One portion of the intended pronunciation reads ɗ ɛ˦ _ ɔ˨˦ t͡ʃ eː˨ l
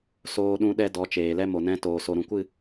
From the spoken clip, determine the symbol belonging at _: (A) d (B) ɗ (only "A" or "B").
A